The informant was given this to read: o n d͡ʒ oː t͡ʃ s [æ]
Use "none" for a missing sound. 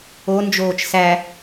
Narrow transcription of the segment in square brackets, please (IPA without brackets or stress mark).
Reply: æ